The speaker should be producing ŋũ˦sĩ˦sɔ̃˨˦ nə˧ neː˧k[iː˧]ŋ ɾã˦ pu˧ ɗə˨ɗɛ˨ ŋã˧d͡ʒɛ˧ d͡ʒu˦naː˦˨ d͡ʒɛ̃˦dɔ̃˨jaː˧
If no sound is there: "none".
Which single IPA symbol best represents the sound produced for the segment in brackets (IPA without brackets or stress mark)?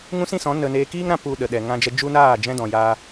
iː˦